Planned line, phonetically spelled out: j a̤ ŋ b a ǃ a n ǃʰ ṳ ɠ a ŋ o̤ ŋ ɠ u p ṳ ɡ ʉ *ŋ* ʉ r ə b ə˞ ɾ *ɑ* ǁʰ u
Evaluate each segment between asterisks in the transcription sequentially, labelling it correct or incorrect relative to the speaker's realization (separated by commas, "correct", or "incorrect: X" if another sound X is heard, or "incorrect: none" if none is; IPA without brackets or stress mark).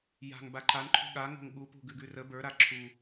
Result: incorrect: ɡ, incorrect: a